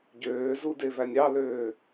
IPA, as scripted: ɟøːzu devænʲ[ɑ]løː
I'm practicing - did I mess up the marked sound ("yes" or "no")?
no